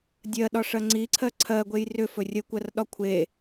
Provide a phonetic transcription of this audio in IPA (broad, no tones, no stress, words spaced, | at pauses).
dʲɜɗɒʂɜ ŋ͡ǀiǀʰɜ ǀʰɜɡʷej rʏfɵ rʲəkʷɜrɗɒ kʷʰe